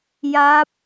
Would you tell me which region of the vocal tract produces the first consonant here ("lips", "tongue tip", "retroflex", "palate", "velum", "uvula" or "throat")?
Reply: palate